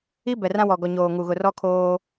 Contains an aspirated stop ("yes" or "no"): yes